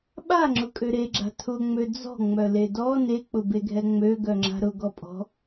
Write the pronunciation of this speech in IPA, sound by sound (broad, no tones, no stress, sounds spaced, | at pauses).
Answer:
ɓ a ŋ͡ǁ ʊ kʼ ø ɾ e ɡ͡ǁ a̤ tʰ ʊ ŋ͡m ø d͡z ɔ̤ ŋ͡m œ l e d ɔ n e k͡p ʊ b e ɡʱ ɛ ŋ͡m ø ɡ œ ŋ͡ǁ a̤ ɾ ʊ ɡ ɔ pʼ ɔ̤